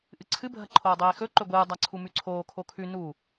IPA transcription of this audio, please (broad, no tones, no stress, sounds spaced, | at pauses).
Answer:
ʔ ɨ ǀʰ ɨ bʱ ɐ ǃʰ oː dˤ eː x ɵ ǃ ɵ ɡʷ ɨː dˤ a ǀʰ u m ʉ ǀʰ oː kʰ o kʰ ʉ n u